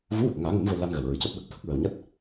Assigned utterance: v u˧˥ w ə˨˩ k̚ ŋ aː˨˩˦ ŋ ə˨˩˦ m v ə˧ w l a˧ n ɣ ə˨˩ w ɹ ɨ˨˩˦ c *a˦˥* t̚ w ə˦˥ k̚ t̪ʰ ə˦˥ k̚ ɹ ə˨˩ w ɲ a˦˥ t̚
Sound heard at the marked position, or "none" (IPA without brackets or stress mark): a˦˥